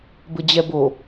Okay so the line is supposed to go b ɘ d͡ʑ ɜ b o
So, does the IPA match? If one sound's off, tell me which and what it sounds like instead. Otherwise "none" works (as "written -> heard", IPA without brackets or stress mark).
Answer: ɜ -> ɛ